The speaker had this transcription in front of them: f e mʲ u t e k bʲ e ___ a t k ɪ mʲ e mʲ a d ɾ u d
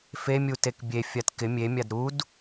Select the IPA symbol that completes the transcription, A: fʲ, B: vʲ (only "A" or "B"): A